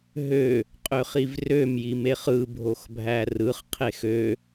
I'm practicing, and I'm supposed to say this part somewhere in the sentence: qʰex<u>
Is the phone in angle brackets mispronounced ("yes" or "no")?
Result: yes